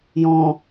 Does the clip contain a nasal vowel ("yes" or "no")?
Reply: yes